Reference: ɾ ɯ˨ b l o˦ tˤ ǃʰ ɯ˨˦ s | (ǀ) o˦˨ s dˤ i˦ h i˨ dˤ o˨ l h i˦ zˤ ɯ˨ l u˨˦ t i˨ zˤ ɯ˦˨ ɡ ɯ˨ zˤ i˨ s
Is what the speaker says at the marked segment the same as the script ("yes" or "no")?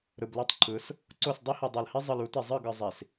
yes